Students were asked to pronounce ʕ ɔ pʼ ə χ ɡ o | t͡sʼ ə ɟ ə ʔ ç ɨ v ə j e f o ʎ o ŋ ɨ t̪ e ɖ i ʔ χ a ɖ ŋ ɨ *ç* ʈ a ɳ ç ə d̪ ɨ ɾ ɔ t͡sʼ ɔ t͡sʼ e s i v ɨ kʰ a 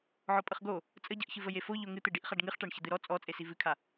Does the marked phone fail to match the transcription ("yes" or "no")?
yes